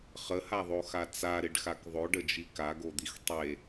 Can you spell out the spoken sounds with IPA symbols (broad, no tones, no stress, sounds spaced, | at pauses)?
χ ə h a ðˤ o x a t͡s a ɾ ɪ ɖ x a k ðˤ o ɖ ə d͡ʒ i k a ɡ o d̪ i x tˤ e